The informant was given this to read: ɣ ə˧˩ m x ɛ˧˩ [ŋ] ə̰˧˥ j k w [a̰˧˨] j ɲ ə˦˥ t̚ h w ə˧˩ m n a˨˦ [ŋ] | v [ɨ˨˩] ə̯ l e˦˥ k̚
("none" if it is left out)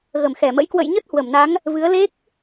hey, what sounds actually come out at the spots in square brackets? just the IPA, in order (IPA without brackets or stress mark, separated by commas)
m, ə̰˧˨, ŋ, ɨ˨˦